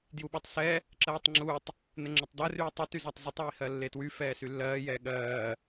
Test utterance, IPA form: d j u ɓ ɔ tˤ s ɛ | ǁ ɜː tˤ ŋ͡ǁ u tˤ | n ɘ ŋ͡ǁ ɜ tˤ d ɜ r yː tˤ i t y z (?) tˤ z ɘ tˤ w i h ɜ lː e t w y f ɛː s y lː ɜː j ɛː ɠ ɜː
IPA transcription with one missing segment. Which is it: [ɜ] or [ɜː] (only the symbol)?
ɜ